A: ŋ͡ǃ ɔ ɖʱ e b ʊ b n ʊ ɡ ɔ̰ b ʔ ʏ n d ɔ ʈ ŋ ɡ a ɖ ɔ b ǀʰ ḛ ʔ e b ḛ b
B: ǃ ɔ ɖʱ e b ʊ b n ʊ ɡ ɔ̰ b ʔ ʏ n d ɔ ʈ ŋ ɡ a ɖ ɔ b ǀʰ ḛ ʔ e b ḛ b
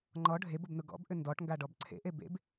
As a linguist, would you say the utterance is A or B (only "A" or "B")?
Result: A